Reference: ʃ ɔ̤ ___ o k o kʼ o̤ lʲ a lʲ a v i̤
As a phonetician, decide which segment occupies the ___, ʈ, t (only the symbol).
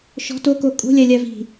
t